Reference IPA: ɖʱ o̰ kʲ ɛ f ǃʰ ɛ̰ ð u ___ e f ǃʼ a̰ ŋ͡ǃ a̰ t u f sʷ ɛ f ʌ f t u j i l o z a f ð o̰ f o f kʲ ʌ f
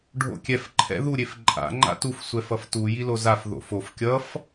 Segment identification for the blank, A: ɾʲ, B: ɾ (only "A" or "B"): A